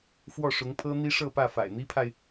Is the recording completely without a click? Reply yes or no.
yes